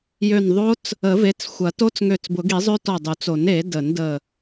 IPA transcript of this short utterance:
j ø˧˩ n ðˤ o˦˥ t͡s | ə˨˩˦ v e˩˥ t͡s xʷ ɐ˨˩˦ t o˦˥ t͡s ŋ ø˧˩ t͡s b ʊ˨˩˦ ɡ i˨˩˦ zˤ ø˦˥ t ɔ˧˩ dˤ u˨˩˦ t͡s o˨˩˦ n e˨˩˦ d ə˨˩˦ n d ə˧˩

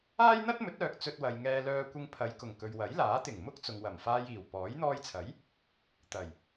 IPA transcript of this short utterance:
aː˥ j n̪ ɐ˥ t̚ m ɵ˨˥ t̚ œː˨ k̚ t͡s ɵ˧ t̚ w ɐ˨ j ŋ ɛː˧ l œː˧ kʷ ɪ˧ ŋ pʰ ɐ˨˧ j k ʊ˨˩ ŋ k ɵ˨ ɥ w ɐ˨˥ j l aː˨˥ t̪ ɪ˨˩ ŋ m ʊ˥ k̚ t͡s ʊ˨ ŋ w ɐ˨˩ m f aː˧ j iː˨˩ w p ɔː˨˥ j n̪ ɔː˧ j t͡sʰ ɐ˨˥ j | t̪ ɐ˨˩ j

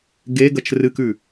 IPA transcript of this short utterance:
ɡ e ɡ ɐ t͡ʃ r ɨ k ʉ

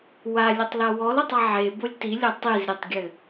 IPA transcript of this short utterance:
w a lʲ ɘ tˤ l a w ɔ l o tˤ a ʕ e b o lʲ t i lʲ ɐ tˤ i z ɾʲ e tˤ ɡʲ ɘ

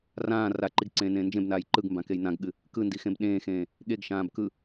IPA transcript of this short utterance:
r ãː r a ǃ i ɡ ǀ ẽː n ẽː n d͡ʒ ẽ b n aː j ǃ ɯ ɡ m b ã k e j n ã ɡ ɠ ɨ | k ɯ n d i x ẽ b ɗ ẽː x ẽː | ɠ e ɡ ʃ ãː b k ɯ

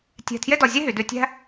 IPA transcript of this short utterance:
tʲ ɛ̤˧˩ tʰ j e˥ d ɔ˧ zʲ e˥ ɦ y˩˧ d ʉ˧ tʲ æ̤˥

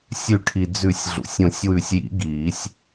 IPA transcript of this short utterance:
sʲ ʉ˨˩˦ ʈʰ i˩ d͡z ʉ˨˩˦ sʲ ɮ ṵ˩ sʲ õ˨˩˦ sʲ w ʉ˨˩˦ sʲ j ḭ˨˩˦ ɡ iː˨˩˦ sʲ

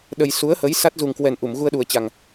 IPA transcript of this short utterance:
ɗ ə˨˩ j s u˨˦ ə̯ h ə˨˦ j s a˦˥ t̚ z u˨˩ ŋ k w ɛ˨˩ n ʔ u˧˩ m ɣ u˧ ə̯ ɗ u˨˩ ə̯ t͡ɕ a˨˩ ŋ

